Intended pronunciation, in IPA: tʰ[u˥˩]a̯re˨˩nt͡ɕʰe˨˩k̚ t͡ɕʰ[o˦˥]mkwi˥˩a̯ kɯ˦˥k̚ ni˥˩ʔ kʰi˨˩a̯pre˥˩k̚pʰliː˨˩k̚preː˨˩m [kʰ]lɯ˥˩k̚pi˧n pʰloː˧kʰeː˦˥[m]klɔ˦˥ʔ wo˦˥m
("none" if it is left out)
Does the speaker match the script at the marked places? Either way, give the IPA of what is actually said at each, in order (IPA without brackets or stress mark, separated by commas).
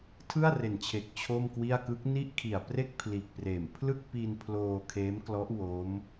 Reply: ɯ˥˩, o˥˩, pʰ, m